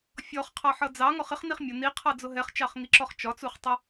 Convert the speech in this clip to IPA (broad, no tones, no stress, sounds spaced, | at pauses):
fʲ ɔ χ qʰ ɑ ħ ʌ d͡z ɑ ŋ ɔ χ ɪ χ n i χ mʲ ʊ n i qʰ ɑ d͡z ʊ ɦ ɛ χ t͡ʃ ɑ χ ŋ i ǁ ɔ χ t͡ʃ ɒ t͡s u χ tˤ ə